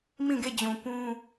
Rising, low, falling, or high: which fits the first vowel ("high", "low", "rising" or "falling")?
falling